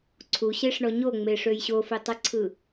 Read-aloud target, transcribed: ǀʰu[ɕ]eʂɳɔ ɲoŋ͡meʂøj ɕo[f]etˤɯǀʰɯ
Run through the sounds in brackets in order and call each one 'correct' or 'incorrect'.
correct, correct

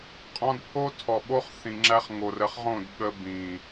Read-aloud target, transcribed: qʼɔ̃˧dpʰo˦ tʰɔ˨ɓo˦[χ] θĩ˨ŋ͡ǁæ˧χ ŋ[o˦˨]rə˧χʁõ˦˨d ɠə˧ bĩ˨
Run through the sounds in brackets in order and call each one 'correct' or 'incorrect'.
correct, incorrect

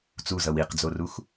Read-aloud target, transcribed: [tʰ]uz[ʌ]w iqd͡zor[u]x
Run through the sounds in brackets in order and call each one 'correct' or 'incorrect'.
incorrect, correct, correct

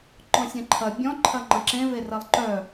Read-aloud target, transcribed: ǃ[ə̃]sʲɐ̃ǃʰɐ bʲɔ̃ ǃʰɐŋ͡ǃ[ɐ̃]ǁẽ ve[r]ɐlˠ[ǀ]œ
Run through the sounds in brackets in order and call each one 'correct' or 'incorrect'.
incorrect, correct, correct, incorrect

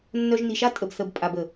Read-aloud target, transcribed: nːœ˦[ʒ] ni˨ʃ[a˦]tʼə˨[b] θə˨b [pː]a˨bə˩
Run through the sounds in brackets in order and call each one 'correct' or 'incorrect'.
correct, incorrect, correct, incorrect

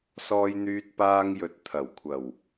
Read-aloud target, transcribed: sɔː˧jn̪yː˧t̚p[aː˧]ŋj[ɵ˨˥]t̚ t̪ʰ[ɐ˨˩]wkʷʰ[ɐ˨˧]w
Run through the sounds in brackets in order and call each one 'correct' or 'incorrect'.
correct, correct, correct, incorrect

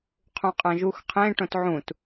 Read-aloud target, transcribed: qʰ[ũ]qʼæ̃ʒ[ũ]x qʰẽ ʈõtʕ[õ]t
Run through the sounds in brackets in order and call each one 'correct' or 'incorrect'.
correct, incorrect, incorrect

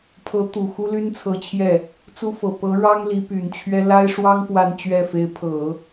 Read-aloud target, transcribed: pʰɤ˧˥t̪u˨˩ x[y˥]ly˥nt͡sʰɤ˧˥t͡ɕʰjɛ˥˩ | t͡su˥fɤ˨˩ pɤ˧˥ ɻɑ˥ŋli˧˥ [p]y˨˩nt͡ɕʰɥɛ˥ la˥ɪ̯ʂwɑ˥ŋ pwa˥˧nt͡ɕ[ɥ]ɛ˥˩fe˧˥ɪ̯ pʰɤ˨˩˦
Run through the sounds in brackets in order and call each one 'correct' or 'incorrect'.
incorrect, correct, correct

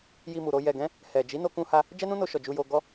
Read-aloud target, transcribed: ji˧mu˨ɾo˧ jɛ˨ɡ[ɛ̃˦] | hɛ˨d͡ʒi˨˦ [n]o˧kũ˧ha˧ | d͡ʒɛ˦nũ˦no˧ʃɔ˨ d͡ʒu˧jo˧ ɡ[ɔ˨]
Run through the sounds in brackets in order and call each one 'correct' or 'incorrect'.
incorrect, correct, incorrect

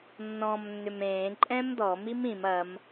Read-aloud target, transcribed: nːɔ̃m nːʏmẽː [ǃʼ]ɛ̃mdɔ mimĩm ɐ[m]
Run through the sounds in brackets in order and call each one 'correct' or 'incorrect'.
correct, correct

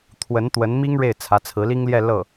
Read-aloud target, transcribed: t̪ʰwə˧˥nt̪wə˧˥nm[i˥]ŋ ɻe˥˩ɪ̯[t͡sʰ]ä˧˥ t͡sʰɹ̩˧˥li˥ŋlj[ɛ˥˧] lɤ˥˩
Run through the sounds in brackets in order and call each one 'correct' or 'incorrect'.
correct, correct, correct

